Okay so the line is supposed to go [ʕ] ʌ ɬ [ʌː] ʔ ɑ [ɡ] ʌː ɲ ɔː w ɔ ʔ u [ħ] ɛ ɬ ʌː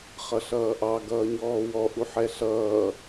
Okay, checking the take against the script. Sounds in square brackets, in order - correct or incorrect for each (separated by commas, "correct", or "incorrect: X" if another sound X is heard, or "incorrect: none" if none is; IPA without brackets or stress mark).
incorrect: χ, correct, correct, correct